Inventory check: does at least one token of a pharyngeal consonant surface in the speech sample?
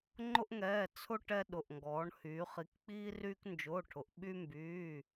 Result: no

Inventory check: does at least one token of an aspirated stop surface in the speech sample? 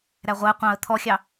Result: yes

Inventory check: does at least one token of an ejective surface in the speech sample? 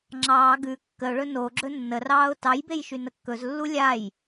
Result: no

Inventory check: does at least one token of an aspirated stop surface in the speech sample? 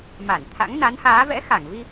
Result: yes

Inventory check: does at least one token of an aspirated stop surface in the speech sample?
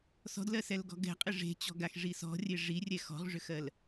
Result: no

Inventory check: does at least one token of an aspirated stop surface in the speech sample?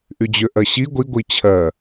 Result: yes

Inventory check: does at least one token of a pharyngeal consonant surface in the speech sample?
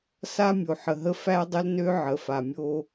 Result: yes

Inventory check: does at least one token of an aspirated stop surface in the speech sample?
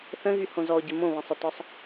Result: no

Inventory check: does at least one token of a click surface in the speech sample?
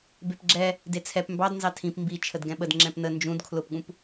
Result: yes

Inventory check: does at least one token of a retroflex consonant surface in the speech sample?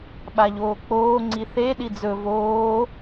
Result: no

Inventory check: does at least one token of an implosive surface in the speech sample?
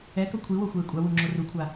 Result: no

